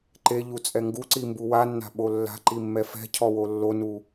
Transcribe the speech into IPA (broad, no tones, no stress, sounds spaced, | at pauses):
ǃ e ʎ u t͡sʼ ɛ ŋ ɡ u ǀ i m b u w a nː a̤ ɓ o lː a̤ ǃ i mː ɛ f ɛ̤ cʰ ɔ w o lː o n u